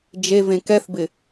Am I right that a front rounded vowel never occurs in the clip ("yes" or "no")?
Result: yes